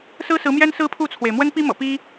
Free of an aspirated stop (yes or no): no